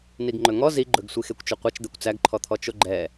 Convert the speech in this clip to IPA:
n i ɡ ŋ͡ǃ ɵ ŋ ɔ z i ɡ͡ǃ ɵ ɡ sʷ i x e kʷ t͡ʃ ɵ qʷ ɛ t͡ʃ d̪ ɛ kʷ t͡s æ ɡ ǃʰ ɔ t̪ʰ ɔ t͡ʃ o ɡ͡ǃ ɛ

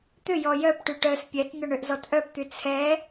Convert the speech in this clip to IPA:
t̪ ʏ j ɔ j œ p ʈ y ʈ œ s pʲ ɛ t n̪ ʏ ɳ ʏ ʔ z ɔ t ʔ œ p t̪ y t͡sʰ ɛ

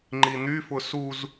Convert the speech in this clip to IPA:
ŋ͡ǃ i n̪ y f ʊ s u z

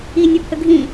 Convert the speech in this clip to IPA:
i nʲ ɔ pʰ ə ɡʱ ĩ

